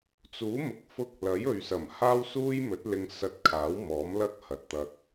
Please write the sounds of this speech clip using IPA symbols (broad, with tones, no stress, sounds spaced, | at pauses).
t͡s uː˨˥ m ʊ˨ k̚ f ʊ˧ k̚ l ɐ˨˥ j ɵ˨ ɥ s ɐ˨˩ m h aː˥ w s uː˥ j m ɵ˨˥ t̚ l ɪ˧ ŋ s ɐ˧ t̚ kʰ aː˨˥ w m ɔː˨˥ m l ɐ˥ k̚ h ɐ˨ t̚ t̪ ɐ˧ k̚